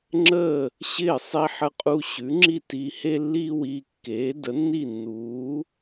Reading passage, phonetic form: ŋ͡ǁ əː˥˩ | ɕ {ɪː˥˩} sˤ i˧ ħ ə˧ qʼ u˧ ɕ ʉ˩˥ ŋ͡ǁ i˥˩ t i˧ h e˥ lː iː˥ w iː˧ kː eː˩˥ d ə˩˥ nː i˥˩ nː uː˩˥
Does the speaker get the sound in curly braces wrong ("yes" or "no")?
no